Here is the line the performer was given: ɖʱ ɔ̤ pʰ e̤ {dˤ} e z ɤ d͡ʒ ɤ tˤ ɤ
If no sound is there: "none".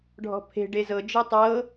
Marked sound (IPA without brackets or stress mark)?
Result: ɖ